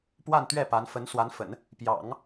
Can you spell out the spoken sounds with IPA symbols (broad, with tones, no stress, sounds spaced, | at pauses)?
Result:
p w a˥˧ n t̪ ɥ ɛ˥˩ p a˧˥ n f ə˧˥ n s w a˧˥ n f ə̰˨˩˦ n | p j ɑ̰˨˩˦ ŋ